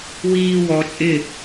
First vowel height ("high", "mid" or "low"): high